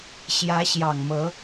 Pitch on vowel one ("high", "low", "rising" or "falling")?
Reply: rising